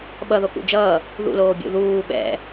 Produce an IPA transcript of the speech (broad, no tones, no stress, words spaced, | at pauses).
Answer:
ɓʌðokṵ d͡ʒʌː | ðṵloːbʲṵ ðuː ɓɛ̰